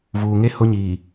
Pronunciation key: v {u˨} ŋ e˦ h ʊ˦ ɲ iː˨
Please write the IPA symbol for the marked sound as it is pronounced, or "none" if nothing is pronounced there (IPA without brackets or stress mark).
uː˨